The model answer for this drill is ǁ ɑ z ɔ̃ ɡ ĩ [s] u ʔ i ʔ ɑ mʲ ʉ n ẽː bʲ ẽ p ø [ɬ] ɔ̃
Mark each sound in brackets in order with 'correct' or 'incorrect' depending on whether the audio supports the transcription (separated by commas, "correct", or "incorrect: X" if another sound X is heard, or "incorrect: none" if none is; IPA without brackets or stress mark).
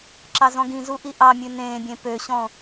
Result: incorrect: z, incorrect: ɕ